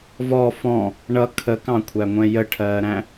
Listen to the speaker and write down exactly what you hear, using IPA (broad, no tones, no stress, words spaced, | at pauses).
vɔ fɔ̃ | ɳʌ kʰəkɑ̃kʷʰæŋʷɛ̃ jəʈʰɜːɾæ̃